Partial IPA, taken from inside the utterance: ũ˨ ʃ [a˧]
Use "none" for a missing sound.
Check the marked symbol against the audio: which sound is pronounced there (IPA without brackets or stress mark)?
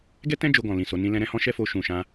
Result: ã˧